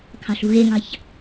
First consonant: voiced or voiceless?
voiceless